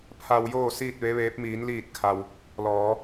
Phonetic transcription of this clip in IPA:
pʰ a˧ w j oː˥˨ s iː˥˨ t̚ ʋ e˧˥ ʋ eː˧˥ p̚ m iː˩˧ n l iː˧˩ t̚ kʰ a˩ w | l ɔː˩˧

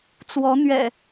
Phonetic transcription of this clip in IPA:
t͡s w ɔ˨˦ n̪ ɥ ɛ̰˨˩

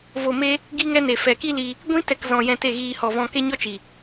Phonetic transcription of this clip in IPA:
v o˨ m e˦ | ɡ i˦ ŋ ɛ˦ n e˨ f ɛ˨ k i˦ l i˧ | ɡʷ ĩ˦ t ɛ˨ k z ɔ̃˨ j ɛ̃˧ t e˦˨ ɣ iː˧ h ɔ˨ v ɔ̃˧ k e˦ ɲ ɔ˦ t͡ʃ i˨

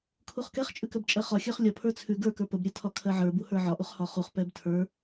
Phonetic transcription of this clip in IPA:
kʰ u χ k ɛ χ t͡ʃʼ ʉ k ɜ b t͡ʃʼ ɜ χ ɒ xʲ ə˞ χ lʲ ɒ pʰ ə˞ t͡sʰ ʉ ɡ ə˞ k ə˞ p ə b ɾʲ ɛ tʰ ɒ kʰ ɜ ʕ ə˞ b u h ə˞ ʕ ɒ ʔ u χ h ɒ χ u χ p ɛ b tʰ ə˞

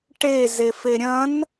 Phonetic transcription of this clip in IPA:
ʈ e z e f e ɾʲ ɐ̃ n

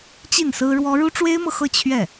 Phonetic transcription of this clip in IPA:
t͡ɕ i˥˩ n s ɹ̩˥ ɻ w ɔ˥ ɻ u˥ ʈ͡ʂ w e˥ ɪ̯ m ɤ˨ x ɤ˥˧ t͡ɕʰ ɥ ɛ˥˩

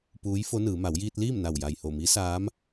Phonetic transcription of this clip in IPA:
p uː˧˥ j f o˧˥ n ɯː˩˧ m a˩˧ w j iː˧ t̚ l iː˥˨ m n a˧˩ w j a˧˩ j h o˧˩ m i˧˥ s aː˧˥ m

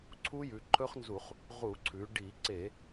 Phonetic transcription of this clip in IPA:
ǀʰ u˦˥ j ʉ˩˧ ǃʰ ɵ˦˥ χ n z u˧˩˧ χ | ʁ u˧˩˧ ǀʰ ʉ˩˧ ɖ i˧˩˧ ǀ e˧˩˧

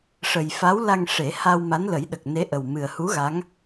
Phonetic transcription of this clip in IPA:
ʂ ə˨˩ j f a˧˥ w l a˧ ŋ ʂ e˨˩˦ h a˧ w m a˧˥ n l ə˨˩˦ j ɗ ə˨˩ k̚ n e˧˥ ʔ ə˨˩ w m ɨ˨˩ ə̯ h u˧˥ ɣ a˧˥ ŋ

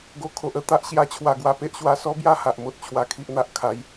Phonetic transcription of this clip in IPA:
ɡ o˨˩ kʰ o˨ ʔ ə˦ t̪ a˨ ʔ ɕ j a˧ t͡ɕʰ w a˨˩ ɡ w a˨˩ p e˦ ʔ ɕ w a˧ s ɔ˦ b j a˥˧ h a˨ ʔ m o˦ t̚ t͡ɕʰ w a˧ kʰ i˦ ʔ n̪ a˨ ʔ kʰ a˨˦ j

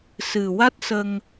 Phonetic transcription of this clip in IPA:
s ɨ˨˩ w a˦˥ t̚ s ə˧ ŋ

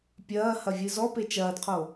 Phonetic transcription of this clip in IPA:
pʲ ɐː h ɐ vʲ ɨ z ɔ p e t͡ʃ ɐː d qʰ o

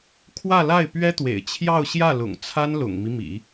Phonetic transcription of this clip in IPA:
kʰ w ä˥˧ l a˥˩ ɪ̯ p ɥ ɛ˥ t̪ w ḛ˨˩ ɪ̯ t͡ɕʰ j ɑ˥˧ ʊ̯ ɕ j ä˥˩ l ʊ̰˨˩ ŋ t͡sʰ a˥ n l ʊ̰˨˩ ŋ m i˦ m ḭ˨˩˦

